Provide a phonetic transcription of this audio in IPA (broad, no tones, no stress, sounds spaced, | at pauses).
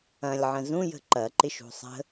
ɐ̃ lʲ ʕ ə̃ z ũ j ə̤ ǃ ɐ ǃ ɪ ʃ ṳ sˤ ə̤